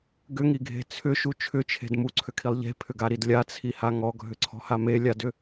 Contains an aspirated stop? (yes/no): yes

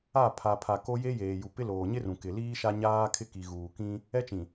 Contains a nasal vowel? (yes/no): yes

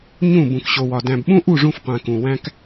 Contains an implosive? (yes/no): yes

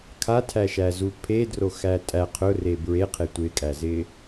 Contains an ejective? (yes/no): yes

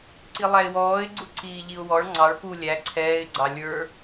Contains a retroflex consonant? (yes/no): yes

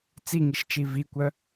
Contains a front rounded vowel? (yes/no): yes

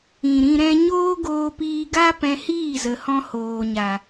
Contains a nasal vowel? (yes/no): yes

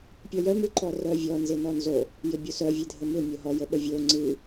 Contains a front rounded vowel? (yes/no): yes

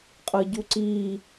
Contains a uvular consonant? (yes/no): yes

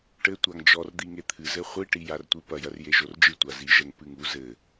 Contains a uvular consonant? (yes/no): yes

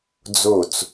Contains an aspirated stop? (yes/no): no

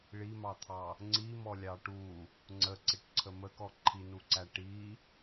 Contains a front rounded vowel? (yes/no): no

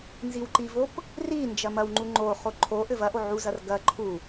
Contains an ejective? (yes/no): no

